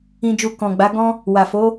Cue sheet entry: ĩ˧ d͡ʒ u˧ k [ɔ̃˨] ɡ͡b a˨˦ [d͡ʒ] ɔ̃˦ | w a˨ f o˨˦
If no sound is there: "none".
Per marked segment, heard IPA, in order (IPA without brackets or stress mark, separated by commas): ɔ̃˨, ɡ